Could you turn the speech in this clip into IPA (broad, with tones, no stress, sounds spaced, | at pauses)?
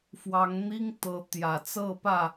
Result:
f w ɑ˨˦ ŋ n̪ i˦ ŋ t̪ ɤ˨˦ t̪ j ä˨˩ t͡s ɤ˥˨ p ä˥˨